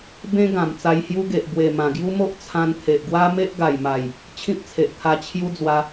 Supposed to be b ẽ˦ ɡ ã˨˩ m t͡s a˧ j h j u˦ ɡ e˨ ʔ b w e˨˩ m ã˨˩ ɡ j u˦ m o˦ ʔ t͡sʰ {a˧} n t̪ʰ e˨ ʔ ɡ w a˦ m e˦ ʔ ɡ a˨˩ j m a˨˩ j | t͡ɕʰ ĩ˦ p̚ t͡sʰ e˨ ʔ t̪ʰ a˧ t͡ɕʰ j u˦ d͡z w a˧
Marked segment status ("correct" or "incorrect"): incorrect